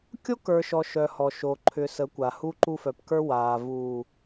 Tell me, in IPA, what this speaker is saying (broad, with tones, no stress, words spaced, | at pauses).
kʲo˦kə˞˨ ʃɔ˨ʃœ˨ hɔ˨ ʃo˨ǃʰʏ˨ sə˨˦kʷa˨hu˦ǃu˦ fœ˨pkə˞˦waː˨ vuː˨